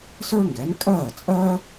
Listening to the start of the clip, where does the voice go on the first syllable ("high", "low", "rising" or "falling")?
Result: high